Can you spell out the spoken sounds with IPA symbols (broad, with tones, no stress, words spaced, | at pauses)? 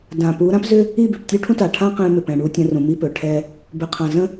dã˨pu˨˦ ɾã˦pzʏ˦ | i˦˨bʏ˨p tʲu˦ʈʰũ˦ta˨ ʈʰã˦ qɛ̃˦mʏ˨pɛ̃˨ ɳu˦tʲə̃˦rũ˨ mi˦pɵ˨ʈʰɛ˦ | bʏ˨qʰã˨ zə̃˦